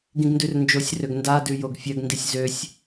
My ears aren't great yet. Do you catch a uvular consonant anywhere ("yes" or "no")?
no